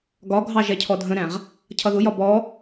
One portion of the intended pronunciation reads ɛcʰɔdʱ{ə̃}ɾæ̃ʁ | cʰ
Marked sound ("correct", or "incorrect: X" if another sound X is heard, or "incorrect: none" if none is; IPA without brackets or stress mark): correct